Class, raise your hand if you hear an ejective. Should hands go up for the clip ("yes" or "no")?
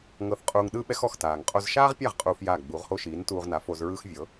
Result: yes